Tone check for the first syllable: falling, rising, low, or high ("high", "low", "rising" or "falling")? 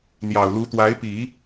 low